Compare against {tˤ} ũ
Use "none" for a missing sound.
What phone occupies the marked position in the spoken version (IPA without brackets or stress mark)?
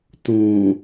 t